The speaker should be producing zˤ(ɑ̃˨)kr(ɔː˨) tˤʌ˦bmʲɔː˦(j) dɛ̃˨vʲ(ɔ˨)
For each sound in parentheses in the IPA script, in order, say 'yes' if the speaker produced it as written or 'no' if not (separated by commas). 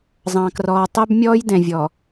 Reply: yes, yes, yes, yes